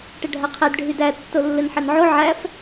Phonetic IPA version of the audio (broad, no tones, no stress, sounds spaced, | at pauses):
ʈ ɘ ɖʱ a qʰ ɛ d ɖʱ y d æ tː o lː ɘ n ħ ɘ n ʕ o ʕ æ f